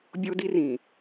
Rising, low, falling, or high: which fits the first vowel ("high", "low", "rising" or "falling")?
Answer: high